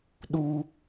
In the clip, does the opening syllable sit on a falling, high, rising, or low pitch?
high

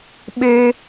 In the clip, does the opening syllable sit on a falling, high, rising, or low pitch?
high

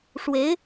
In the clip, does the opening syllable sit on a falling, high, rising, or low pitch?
rising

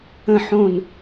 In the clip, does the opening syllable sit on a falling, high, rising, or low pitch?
falling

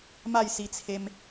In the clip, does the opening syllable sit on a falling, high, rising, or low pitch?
falling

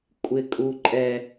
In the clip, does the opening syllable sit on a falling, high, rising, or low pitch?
low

